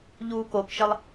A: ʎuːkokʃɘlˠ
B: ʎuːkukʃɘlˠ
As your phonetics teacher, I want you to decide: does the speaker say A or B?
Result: A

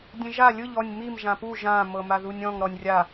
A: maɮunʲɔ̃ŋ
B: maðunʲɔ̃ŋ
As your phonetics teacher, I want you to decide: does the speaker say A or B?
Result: B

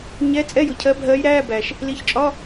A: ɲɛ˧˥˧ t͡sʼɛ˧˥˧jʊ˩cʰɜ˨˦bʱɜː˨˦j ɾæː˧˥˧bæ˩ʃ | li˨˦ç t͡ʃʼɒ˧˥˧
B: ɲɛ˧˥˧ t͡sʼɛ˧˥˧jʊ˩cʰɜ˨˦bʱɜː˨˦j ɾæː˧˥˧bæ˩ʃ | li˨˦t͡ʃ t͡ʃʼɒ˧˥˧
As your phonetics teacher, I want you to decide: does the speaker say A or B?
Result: A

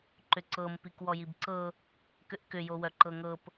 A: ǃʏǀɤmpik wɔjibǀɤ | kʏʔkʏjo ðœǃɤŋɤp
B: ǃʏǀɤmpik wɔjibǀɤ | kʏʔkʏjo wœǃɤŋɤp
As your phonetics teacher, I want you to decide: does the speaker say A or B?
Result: B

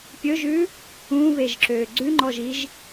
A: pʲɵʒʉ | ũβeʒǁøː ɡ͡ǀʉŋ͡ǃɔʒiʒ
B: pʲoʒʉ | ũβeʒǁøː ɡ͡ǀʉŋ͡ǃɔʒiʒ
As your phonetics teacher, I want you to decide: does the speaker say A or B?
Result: A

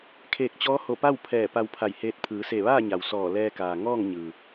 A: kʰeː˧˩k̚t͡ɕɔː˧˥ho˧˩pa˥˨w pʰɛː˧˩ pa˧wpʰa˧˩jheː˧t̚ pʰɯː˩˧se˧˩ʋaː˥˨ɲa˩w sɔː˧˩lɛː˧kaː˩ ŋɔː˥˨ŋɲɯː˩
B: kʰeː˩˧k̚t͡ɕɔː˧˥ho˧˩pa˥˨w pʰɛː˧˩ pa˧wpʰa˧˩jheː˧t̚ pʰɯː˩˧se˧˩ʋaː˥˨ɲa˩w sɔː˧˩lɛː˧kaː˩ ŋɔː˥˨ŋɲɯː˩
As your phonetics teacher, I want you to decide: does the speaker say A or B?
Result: A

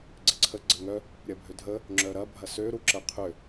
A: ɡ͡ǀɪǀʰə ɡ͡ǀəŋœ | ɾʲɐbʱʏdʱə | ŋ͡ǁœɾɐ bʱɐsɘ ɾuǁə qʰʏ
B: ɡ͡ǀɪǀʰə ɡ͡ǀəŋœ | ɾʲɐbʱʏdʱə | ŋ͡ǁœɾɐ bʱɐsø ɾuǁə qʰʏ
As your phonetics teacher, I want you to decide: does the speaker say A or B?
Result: B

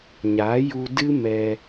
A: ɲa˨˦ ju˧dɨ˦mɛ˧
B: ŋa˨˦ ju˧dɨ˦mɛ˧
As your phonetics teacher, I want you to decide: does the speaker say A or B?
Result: A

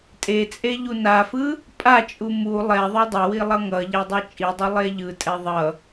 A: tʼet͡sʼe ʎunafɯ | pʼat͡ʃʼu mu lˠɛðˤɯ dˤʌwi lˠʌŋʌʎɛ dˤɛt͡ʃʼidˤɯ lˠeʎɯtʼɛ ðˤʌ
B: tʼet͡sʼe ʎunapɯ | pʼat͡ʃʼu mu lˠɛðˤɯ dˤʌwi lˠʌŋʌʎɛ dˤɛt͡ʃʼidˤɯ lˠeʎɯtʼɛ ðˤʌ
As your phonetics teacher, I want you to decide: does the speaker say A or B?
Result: A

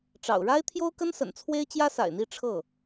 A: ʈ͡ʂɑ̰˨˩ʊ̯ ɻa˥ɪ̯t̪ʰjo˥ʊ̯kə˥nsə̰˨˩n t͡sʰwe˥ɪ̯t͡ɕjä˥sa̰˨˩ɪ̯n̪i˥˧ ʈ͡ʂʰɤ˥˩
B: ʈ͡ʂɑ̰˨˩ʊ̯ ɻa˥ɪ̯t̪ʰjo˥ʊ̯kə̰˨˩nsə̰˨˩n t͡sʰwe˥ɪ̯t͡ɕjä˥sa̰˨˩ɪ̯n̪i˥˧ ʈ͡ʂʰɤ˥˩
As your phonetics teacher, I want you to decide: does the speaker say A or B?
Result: A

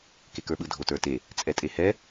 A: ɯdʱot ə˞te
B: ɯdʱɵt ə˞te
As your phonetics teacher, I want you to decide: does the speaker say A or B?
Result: A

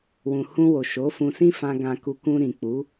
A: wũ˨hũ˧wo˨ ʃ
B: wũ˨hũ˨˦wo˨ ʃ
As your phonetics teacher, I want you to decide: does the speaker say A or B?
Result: A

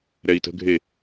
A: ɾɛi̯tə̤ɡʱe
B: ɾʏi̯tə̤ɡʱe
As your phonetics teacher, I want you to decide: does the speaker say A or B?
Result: A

